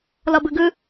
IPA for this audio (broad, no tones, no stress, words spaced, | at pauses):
lʌbɨɡɨ